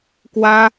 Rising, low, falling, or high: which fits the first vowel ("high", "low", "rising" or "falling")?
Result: high